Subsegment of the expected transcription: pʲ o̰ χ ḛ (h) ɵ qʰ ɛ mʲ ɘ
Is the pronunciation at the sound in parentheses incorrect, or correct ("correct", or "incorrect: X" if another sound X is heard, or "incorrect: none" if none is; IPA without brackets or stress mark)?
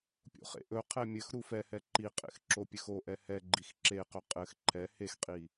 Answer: incorrect: ʔ